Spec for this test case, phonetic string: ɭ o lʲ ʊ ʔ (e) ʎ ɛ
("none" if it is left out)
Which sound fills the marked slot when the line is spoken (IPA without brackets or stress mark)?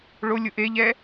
e